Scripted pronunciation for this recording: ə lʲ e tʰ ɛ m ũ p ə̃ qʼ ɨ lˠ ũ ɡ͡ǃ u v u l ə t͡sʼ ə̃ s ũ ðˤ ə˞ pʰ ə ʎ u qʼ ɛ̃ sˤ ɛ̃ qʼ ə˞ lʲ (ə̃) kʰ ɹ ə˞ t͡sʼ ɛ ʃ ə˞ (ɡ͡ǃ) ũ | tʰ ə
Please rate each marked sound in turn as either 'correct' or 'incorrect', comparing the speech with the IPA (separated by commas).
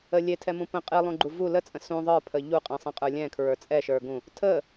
incorrect, incorrect